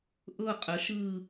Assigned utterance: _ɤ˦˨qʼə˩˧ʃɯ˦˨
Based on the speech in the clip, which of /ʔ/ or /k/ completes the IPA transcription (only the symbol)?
ʔ